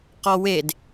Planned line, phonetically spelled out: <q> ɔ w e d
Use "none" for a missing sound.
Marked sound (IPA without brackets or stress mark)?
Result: q